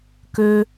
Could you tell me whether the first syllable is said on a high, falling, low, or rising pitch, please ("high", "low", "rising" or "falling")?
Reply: low